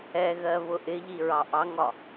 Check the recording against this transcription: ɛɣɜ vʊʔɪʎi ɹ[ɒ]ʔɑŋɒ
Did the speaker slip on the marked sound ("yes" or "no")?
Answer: yes